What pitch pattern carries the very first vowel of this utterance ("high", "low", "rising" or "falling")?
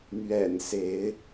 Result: low